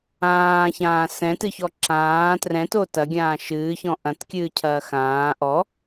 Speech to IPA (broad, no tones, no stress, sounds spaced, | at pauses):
ãː ç ãː s ɛ̃ t ɨ ç ɔ ǁ ãː t r ɛ̃ t o t ɐ ɡʲ ãː ʃ ɨː ç ɔ̃ ʔ ɐ̃ t kʲ ɨː cʰ ɐː x ãː ʔ ɔ